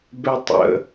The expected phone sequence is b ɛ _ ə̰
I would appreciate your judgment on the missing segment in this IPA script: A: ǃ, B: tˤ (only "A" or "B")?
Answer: B